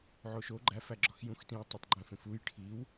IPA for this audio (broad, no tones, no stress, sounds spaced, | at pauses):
ʕ o ʃ o ɡ͡ǃ æ f æ ɡ͡ǁ ɒ x j ũ x t ĩ w tˤ e tˤ ɡ͡ǃ æ̃ f ẽ f u j ʈʰ i w